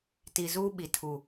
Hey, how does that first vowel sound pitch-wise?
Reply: low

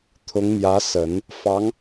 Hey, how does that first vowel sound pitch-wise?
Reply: rising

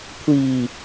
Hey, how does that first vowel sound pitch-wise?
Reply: low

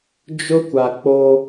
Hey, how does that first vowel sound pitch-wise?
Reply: high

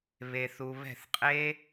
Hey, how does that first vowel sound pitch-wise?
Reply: low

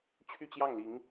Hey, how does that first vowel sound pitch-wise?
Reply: falling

